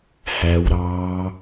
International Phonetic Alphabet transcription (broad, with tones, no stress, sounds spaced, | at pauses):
h æ˦˥ w ɾ ɑː˦˥